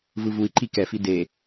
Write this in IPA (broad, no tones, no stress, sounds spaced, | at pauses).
v ɯ v u i̯ ǃ i k ɛ f i d e